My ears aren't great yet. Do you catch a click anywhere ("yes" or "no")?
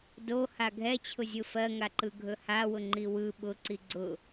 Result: yes